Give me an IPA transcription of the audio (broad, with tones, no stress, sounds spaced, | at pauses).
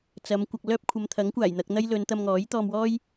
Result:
t͡s ɐ˨˧ m kʷ ɐ˧ k̚ l œː˥ p̚ kʷʰ ɐ˨˧ m t̪ʰ ɐ˨˥ ŋ kʷ aː˨˩ j n̪ ɐ˧ k̚ n̪ ɐ˥ j l ɵ˨˧ n t̪ ɐ˧ m ŋ ɔː˨˥ j t̪ ɔː˧ m w ɔː˥ j